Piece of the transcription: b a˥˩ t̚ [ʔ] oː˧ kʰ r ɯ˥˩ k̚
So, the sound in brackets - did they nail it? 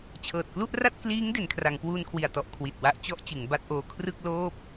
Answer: yes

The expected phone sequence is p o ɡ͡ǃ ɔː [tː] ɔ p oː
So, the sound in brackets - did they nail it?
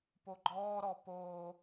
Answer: no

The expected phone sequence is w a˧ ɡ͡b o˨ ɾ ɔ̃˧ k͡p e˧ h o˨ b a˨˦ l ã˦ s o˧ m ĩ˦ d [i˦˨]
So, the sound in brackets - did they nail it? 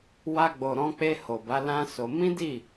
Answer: yes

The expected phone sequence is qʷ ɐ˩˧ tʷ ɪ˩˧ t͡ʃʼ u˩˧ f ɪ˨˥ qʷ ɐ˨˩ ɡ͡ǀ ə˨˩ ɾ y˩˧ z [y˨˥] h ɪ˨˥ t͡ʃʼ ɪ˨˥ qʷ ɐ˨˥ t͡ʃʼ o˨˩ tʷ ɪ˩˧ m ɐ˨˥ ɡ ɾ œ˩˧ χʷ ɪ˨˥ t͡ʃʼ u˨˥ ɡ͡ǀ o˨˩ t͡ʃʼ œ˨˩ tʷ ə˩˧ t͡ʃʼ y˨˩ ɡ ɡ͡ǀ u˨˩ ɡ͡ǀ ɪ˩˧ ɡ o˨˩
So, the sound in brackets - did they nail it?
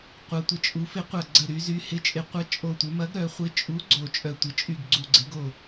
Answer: yes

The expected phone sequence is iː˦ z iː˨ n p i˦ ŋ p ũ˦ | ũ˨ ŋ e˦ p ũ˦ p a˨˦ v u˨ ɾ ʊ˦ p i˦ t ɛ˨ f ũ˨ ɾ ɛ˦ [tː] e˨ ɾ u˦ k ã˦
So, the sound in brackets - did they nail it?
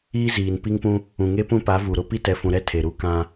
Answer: no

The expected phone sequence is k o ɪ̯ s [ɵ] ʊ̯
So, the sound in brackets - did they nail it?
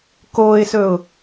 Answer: yes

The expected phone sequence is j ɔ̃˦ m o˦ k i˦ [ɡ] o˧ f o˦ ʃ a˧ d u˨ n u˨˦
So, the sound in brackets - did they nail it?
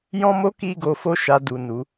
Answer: yes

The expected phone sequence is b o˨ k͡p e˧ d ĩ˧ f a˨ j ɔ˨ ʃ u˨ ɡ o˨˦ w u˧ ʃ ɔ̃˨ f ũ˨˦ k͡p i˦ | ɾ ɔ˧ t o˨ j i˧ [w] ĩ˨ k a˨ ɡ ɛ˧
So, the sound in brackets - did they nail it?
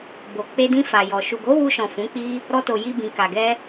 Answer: no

